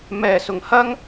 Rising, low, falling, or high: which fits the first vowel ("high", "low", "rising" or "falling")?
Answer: low